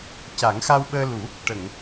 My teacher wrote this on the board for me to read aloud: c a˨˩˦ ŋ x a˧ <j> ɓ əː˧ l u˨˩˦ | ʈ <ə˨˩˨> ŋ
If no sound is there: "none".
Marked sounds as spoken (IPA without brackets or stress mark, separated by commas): w, ə˨˩˨